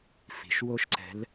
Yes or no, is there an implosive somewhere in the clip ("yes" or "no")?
no